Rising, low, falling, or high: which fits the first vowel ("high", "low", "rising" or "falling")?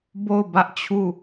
falling